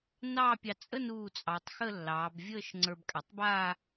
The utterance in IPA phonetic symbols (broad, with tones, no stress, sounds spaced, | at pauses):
n ɑː˥˧ pʲ ɑ˧ t͡sʼ ə˥˧ n uː˧˩ t͡sʼ ɑ˩˧ tˤ x ə˥˧ lː ɑː˩˧ b vʲ əː˥˧ ʃ ŋ͡ǀ ə˞˧ b kʼ a˩˧ tˤ b aː˥˧